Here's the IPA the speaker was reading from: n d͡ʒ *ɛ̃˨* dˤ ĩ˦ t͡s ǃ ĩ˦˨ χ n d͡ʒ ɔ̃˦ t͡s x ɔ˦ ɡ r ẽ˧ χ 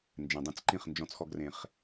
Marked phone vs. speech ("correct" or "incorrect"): correct